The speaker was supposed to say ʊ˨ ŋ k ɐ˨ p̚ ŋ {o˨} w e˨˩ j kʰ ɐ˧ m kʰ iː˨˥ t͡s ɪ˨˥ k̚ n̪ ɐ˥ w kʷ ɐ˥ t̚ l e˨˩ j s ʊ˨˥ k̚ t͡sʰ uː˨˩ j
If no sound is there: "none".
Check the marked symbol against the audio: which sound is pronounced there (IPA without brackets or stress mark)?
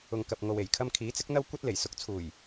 o˨